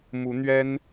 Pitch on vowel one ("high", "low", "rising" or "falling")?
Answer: rising